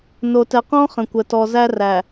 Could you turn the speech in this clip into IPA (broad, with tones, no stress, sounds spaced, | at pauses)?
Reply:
n o˨ t ɛ˨ q ɔ̃˦ χ ə̃˨ kʷ ə˨ t ɔ˨ z æ˦ r æ˨